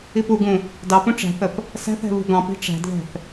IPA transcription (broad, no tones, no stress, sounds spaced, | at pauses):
i p u ɡ ũ | d ɑ p ũ ʈ͡ʂ æ̤ θ ə p | s æ̤ θ ɛ̤ β ṳ ɡ ɑ̃ p i̤ ʈ͡ʂ æ̤ d ð ɛ̤ θ